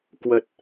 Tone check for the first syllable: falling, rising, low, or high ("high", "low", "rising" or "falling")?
low